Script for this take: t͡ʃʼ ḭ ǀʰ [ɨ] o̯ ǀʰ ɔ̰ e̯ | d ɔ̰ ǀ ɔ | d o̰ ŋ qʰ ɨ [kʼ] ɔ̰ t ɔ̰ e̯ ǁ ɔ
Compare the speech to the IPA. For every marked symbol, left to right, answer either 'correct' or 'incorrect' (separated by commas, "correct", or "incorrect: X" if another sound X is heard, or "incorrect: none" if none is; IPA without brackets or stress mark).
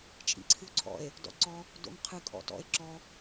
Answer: correct, correct